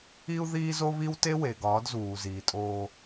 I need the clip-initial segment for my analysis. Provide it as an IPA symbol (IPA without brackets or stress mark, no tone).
i